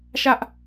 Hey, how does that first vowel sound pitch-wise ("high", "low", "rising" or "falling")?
high